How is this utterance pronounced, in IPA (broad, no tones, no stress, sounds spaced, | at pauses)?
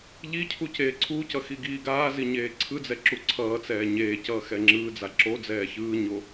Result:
ʎ i cʰ u c eː ǀʰ u c ʌ x i ɡ iː ɡ aː z i ɲ eː ǀʰ ɯ d͡z ɛ ǁ u ǀʰ ʌː t͡s ɛː ɲ eː c ʌː x ɛ ŋ͡ǁ ɯː d͡z a ǁ o d͡z ɛː ç ɯː ɲ o